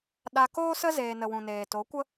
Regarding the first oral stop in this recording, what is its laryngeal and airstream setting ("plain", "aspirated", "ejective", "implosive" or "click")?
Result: implosive